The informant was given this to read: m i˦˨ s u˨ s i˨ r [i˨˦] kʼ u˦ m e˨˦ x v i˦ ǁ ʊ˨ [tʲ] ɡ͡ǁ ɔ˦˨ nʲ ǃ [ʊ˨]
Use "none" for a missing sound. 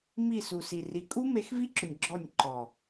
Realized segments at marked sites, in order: i˨˦, nʲ, ɔ˨

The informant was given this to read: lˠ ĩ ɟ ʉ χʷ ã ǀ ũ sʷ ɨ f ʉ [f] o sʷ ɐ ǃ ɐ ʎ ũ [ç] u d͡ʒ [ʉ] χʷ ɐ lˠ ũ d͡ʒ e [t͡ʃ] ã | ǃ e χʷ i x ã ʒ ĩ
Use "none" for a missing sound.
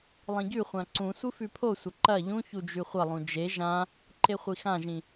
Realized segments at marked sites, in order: pʰ, ç, ʉ, ʒ

